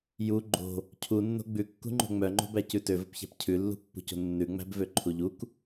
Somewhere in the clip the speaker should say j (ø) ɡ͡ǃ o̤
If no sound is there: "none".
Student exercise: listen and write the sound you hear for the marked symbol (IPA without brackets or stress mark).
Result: u